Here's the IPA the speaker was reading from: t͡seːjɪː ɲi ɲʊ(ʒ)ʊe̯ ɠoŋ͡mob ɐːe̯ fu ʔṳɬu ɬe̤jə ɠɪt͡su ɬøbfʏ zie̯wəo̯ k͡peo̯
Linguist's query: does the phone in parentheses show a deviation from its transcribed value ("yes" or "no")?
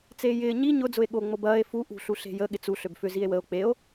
yes